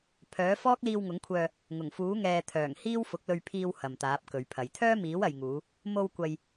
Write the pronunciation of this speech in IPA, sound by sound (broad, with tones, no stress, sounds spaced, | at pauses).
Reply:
pʰ œː˨˥ f ɔː˥ k̚ l iː˧ w ŋ ʊ˨˥ ŋ kʷʰ œː˧ | ŋ ʊ˨˩ ŋ f uː˨˥ ŋ ɛː˨ t̪ʰ œː˨˩ ŋ h iː˥ w f ʊ˨˥ k̚ l ɵ˧ ɥ pʰ iː˧ w h ɐ˨ m t̪ aː˨˥ p̚ k ɵ˨˧ ɥ pʰ ɐ˨˧ j t̪ʰ œː˥ m iː˨˥ w ɐ˨ j ŋ uː˨˧ | m o˧ w kʷ ɐ˨ j